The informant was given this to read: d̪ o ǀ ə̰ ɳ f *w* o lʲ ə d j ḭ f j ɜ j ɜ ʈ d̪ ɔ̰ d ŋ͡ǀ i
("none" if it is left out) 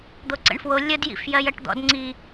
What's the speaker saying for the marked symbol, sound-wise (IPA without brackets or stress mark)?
w